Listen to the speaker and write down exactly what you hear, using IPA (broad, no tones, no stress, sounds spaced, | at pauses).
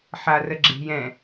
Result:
ħ a r ə ɡ͡ǁ e̤ j ɛ̃